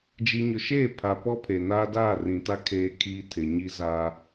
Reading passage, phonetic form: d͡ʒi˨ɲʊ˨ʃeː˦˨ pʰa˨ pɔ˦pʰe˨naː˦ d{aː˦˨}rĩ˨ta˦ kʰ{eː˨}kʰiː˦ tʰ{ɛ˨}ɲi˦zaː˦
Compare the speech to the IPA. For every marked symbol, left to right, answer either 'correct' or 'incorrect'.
correct, incorrect, incorrect

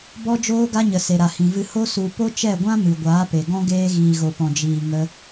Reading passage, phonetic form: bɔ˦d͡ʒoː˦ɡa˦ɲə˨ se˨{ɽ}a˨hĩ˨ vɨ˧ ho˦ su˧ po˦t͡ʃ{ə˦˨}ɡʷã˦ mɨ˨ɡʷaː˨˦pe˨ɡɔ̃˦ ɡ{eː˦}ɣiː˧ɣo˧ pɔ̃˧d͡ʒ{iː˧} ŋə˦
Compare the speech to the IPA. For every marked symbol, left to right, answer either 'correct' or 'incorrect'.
incorrect, incorrect, correct, correct

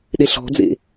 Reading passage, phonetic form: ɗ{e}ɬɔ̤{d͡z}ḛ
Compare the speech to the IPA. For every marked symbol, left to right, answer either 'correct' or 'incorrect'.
correct, correct

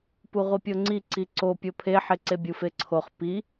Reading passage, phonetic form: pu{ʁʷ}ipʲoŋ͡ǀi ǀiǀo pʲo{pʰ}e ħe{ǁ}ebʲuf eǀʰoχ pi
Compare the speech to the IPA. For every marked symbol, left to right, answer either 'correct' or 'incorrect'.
correct, correct, incorrect

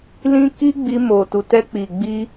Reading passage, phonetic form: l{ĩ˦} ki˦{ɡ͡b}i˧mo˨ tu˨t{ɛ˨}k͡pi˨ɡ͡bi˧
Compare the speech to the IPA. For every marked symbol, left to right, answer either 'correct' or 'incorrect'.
correct, correct, incorrect

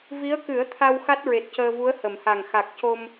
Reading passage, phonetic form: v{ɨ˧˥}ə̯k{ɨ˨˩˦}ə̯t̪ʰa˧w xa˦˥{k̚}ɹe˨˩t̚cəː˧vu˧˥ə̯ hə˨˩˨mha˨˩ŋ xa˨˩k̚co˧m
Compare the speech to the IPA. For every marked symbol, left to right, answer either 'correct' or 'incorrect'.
incorrect, correct, incorrect

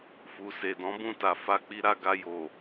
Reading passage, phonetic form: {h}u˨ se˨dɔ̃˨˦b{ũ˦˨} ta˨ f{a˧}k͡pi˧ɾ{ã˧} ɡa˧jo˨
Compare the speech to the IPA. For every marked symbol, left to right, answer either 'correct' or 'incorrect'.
incorrect, correct, correct, incorrect

